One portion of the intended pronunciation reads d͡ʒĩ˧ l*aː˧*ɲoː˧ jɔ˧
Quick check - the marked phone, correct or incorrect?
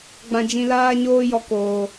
correct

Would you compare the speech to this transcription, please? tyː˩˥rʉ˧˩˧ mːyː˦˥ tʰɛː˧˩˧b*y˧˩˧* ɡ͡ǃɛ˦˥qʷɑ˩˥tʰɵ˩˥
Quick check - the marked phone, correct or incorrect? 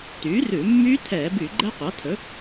correct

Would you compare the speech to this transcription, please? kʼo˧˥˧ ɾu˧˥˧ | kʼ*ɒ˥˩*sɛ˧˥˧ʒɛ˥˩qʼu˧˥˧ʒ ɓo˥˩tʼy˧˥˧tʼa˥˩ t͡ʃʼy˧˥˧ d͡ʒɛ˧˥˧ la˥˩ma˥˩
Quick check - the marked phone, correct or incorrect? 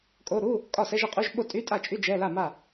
correct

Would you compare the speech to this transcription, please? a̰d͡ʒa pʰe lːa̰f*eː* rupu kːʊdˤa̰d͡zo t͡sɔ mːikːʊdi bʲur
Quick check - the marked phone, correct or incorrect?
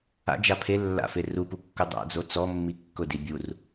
incorrect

